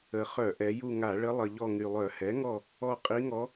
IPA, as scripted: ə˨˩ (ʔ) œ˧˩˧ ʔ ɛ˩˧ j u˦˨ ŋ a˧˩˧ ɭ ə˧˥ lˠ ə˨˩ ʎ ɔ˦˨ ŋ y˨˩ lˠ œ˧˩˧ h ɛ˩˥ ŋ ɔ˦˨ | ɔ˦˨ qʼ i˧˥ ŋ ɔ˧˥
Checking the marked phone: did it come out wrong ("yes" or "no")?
yes